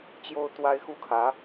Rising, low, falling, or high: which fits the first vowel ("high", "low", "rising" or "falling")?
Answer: high